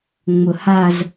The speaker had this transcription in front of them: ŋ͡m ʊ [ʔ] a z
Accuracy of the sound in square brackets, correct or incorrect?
incorrect